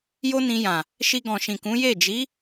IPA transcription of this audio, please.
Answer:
j o˦ n ĩ˧ j ã˨ | ʃ i˧ ɡ ɔ̃˨ ʃ ĩ˨ k ũ˨˦ j e˦˨ d͡ʒ i˨˦

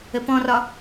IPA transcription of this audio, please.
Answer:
ə p ɔ̃ r ɒ

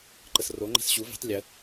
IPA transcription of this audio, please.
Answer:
ǃ ə s r o ŋ͡ǃ ɛ̤ s ɕ u v i̤ tˤ lʲ ə

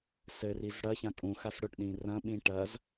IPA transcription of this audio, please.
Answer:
s ɘ r i z ɽ ɐ ç ã kʼ ũ x a s ɽ ʊ ʈ ɗ ĩ r ɐ̃ ɓ ĩ ʈ ɐ z

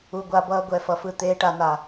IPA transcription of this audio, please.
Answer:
u˨ ɡʷ a˨ b ʌː˨ ɡʷ ɛ˨ f ʌ˨ f ɯ˨ t̪ eː˨ ʈ a˨ n a˨

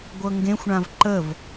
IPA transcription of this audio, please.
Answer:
ɡʷ ɤ ŋ ɡ ẽ xʷ ɳ ã v ǃ ə v

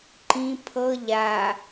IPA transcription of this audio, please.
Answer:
ǃ ĩ pʰ ɤ ʎ a

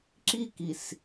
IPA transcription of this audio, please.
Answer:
ǁ i k i s

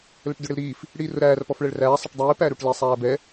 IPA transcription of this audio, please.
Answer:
l ə ʈ d ʊ ɽ ɪ l ɾ iː f | ɽ iː r ʊ ɾ æː r p ɔ f ɭ ɛ ɭ r æː sˤ ɪ ʈ dˤ iː p æ ɾ u ʈ l i sˤ æː b ɛ

